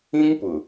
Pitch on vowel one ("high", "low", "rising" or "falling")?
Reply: high